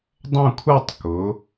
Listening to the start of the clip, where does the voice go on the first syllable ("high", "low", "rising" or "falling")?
falling